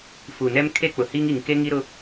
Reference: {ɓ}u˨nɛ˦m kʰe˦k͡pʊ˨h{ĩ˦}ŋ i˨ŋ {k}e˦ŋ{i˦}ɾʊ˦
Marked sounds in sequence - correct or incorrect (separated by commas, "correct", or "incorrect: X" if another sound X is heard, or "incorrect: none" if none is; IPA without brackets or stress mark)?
incorrect: f, incorrect: i˦, correct, correct